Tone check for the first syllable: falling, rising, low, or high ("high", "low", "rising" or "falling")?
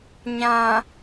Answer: low